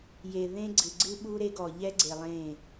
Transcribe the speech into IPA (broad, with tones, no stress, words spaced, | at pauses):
je˨ðẽ˦ɡ͡ǀɨ˨ ɡ͡ǀɨ˦ɓu˦ɾe˦ɡɔ˨ ʎɛ˦ɡ͡ǀe˨ lˠẽ˦˨